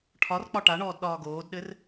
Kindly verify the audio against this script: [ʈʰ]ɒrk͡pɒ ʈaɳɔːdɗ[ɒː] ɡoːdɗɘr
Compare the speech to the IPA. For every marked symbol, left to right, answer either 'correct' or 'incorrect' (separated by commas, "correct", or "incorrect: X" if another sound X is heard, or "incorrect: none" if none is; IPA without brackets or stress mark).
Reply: correct, correct